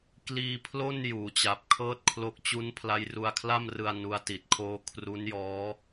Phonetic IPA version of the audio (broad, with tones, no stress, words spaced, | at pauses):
kliː˧pʰlo˥˩n juː˩˦t͡ɕa˨˩p̚kʰɤː˥˩t̚kʰlo˦˥k̚ t͡ɕu˦˥npʰla˦˥j ru˧a̯kʰla˥˩mrɯ˧a̯ nu˦˥a̯ti˨˩t̚kʰoː˥˩ kʰru˦˥njɔː˦˥